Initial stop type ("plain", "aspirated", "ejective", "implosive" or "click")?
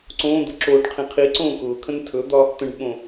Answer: click